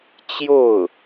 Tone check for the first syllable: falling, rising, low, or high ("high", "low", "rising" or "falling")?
falling